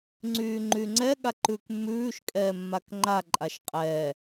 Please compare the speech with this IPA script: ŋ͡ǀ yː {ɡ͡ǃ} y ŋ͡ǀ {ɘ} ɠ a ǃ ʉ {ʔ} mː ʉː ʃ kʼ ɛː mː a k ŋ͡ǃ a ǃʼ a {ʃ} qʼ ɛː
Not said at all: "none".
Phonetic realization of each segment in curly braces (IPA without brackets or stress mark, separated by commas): ŋ͡ǃ, ɛ, k, ʃ